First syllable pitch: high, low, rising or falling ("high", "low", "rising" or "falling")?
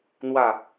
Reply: low